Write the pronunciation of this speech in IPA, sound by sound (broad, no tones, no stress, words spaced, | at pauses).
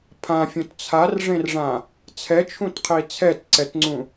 pʰãfʲõt t͡sʰarʐẽrʐã | t͡sʰɛt͡ʃʰũtqʰi t͡sʰɛtǀɛtŋ͡ǀũ